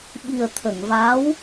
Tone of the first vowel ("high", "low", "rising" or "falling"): low